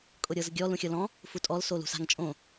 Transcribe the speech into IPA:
kʼ ʊ ɾʲ ɤ z ɡʲ ɔ l ũ xʲ ɤ l ɔ̃ | f u tʼ ɔ l s o l ṳ s a̤ ŋ t͡ʃʼ õ

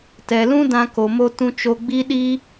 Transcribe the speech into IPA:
t ɛ˨ l ũ˦ d ã˧ k o˨ m o˧ t ũ˧ t͡ʃ o˧ ɡ͡b i˦ ɗ i˦

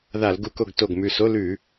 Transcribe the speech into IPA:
ð a˧˩˧ l ɡ u˧˩˧ k o˧˩ ɡ t o˧˩ ɡ m ʉ˧˩ s o˧˥˧ l ʉ˧˩˧

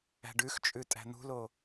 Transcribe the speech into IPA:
æ̤ ɖ ʉ x t͡ʃʼ ʉ tʼ æ̤ n̪ ṳ l o

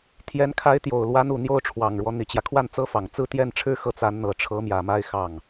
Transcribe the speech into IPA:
t̪ʰ j ɛ˧˥ n kʰ a˧˥ ɪ̯ t̪ j o˨˩ ʊ̯ l w a˧˥ n u˨˩ n̪ j o˥˩ ʊ̯ ʈ͡ʂʰ w ɑ˨˩ ŋ ɻ w ɔ˦ n̪ i˨˩ t͡ɕ j ä˦ kʰ w a˥˩ n t͡s ɤ˥ f ɑ˨˩ ŋ t͡s ɹ̩˥˧ t̪ j ɛ˥˩ n ʈ͡ʂʰ ɻ̩˥ x ɤ˥˩ t͡s a˧˥ n n̪ ɤ˨˩ ʈ͡ʂʰ ɤ˧˥ m j ä˨˩ m a˥˧ ɪ̯ x ɑ˥˩ ŋ

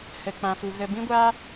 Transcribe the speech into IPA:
h ə˨ k͡p ã˨ f u˨ ɣ ə˧ b ĩ˦ ɡʷ aː˦

